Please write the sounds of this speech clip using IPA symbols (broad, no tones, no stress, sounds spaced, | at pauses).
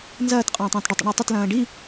n z ɐː t qʼ ɐ̃ː tˤ ɐ̃ː t ɖ ɐ tˤ ə̰ ɳ a tˤ ə t l ɐ̃ː ɖ i